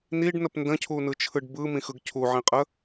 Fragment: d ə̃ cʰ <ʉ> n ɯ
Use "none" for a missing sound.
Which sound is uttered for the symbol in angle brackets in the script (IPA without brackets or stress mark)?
u